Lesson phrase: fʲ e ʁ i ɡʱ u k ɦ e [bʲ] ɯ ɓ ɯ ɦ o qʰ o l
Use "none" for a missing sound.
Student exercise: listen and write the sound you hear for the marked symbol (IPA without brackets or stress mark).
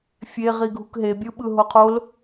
bʲ